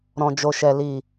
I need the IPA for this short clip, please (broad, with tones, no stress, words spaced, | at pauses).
ɾɔ̃˨d͡ʒo˨ʃɛ˨ li˨